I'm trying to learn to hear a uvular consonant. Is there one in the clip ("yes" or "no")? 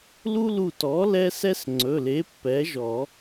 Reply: no